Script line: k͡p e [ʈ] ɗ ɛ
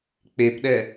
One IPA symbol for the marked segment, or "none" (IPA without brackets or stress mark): p